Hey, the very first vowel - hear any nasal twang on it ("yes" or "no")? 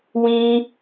yes